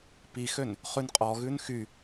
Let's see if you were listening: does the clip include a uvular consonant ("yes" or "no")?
yes